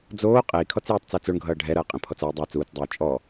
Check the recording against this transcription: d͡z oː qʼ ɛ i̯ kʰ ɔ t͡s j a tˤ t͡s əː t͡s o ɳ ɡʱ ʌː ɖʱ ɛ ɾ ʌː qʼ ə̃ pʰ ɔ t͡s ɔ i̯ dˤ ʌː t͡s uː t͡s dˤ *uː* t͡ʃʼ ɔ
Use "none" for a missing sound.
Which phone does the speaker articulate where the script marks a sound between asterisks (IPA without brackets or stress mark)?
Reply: uː